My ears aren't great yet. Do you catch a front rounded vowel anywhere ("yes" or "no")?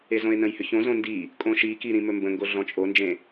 yes